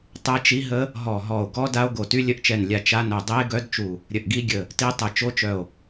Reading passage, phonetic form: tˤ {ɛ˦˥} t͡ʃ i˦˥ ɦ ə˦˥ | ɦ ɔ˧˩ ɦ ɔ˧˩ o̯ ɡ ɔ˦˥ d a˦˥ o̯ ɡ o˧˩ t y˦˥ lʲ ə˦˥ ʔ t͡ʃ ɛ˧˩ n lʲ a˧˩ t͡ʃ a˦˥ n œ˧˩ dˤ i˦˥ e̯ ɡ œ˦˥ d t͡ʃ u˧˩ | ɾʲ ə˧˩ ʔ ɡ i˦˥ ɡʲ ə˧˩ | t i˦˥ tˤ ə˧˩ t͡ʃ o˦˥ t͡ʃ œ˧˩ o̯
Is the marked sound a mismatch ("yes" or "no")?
no